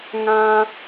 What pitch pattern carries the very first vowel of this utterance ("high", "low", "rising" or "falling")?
high